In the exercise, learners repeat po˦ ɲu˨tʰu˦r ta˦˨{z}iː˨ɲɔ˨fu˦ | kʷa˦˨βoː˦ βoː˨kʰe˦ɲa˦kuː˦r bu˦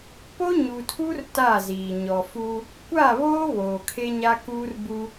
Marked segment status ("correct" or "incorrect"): correct